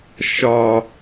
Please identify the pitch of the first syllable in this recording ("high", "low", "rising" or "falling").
high